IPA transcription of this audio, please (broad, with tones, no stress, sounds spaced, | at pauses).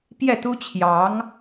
p j ɛ˥˩ t̪ u˥ t͡ɕʰ j ɑ˧˥ ŋ